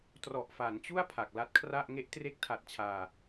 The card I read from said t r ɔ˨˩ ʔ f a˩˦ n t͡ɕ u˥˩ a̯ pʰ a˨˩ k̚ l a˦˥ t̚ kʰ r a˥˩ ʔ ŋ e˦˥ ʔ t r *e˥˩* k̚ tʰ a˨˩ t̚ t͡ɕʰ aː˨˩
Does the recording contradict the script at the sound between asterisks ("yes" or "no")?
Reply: yes